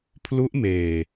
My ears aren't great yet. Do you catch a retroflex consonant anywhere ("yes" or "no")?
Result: no